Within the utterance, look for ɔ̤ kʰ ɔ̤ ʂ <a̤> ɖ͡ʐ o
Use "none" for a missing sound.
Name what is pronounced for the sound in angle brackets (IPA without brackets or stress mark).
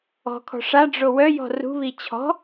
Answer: a